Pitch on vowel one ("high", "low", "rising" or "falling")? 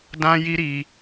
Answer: high